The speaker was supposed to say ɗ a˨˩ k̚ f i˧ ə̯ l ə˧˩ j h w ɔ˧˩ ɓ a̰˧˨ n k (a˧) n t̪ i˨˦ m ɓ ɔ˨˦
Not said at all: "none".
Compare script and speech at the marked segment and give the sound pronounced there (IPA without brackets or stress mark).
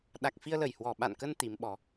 ə˧